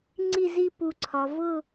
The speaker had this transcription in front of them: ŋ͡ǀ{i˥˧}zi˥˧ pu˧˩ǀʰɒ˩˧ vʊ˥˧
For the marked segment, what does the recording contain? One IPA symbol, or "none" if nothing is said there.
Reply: i˥˧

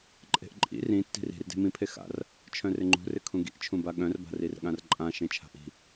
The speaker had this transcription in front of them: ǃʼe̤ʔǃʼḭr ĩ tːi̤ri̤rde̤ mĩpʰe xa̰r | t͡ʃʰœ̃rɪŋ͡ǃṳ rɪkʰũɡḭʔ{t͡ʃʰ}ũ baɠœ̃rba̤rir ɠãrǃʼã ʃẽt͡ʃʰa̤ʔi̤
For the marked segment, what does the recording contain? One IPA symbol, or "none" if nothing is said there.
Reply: t͡ʃʰ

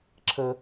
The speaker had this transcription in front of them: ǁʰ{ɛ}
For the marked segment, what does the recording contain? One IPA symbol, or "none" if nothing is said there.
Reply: ə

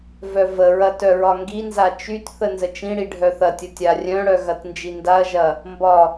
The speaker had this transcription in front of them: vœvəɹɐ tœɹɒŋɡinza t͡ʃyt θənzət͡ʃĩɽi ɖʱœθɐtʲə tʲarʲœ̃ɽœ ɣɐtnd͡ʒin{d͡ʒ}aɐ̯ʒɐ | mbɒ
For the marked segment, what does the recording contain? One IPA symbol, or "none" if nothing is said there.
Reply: d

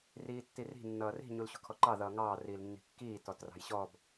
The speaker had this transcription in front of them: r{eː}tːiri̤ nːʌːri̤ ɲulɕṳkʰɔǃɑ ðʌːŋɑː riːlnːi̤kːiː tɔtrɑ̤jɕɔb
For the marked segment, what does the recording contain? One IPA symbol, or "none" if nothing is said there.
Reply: iː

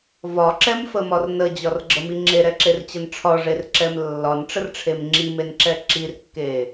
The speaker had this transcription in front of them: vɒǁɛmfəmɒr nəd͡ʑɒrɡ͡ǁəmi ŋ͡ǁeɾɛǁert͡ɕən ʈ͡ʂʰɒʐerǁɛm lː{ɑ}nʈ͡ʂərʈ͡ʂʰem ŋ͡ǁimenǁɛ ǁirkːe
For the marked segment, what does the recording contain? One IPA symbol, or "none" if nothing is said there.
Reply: ɒ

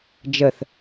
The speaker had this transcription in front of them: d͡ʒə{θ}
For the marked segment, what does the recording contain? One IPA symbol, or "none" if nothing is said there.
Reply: θ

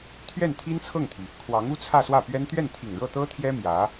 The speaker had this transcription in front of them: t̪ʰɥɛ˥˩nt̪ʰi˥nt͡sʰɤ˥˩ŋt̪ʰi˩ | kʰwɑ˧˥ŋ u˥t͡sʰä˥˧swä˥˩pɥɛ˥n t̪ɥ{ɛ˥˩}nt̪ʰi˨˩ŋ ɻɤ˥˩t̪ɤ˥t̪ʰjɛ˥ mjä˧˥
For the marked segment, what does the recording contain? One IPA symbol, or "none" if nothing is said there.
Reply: ɛ˥˩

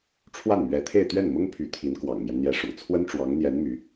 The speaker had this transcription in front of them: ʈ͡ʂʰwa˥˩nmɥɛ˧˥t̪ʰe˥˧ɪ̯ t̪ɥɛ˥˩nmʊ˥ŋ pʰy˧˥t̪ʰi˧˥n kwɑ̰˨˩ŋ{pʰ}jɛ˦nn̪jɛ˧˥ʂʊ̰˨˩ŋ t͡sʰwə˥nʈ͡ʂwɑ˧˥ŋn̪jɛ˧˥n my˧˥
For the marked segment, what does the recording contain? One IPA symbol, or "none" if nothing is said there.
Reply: m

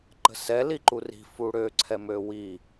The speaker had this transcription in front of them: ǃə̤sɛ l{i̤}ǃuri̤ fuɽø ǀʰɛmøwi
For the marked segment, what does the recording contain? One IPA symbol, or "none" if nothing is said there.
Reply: i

